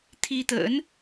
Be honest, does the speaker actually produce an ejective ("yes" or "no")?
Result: no